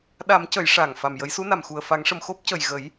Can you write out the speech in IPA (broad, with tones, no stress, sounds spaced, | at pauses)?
ɗ a˨˩˦ m c ə˨˩˦ j ʂ a˨˩ ŋ f a˨˩ m j ə˨˩˦ j s u˧˥ n a˨˩ m x u˨˩ ə̯ f a˨˩˦ ŋ ʂ ə˨˩ m x o˦˥ p̚ c ə˨˩ j ɣ ə˨˩˦ j